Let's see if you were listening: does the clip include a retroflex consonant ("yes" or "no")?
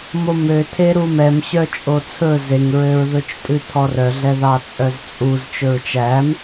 no